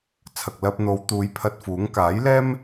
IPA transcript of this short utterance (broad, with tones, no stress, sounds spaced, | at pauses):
t͡sʰ ɐ˨ k̚ l ɐ˧ p̚ n̪ o˨˧ w t̪ uː˨˧ j pʰ ɐ˧ t̚ f uː˨˥ ŋ k aː˨˥ j l ɛː˥ m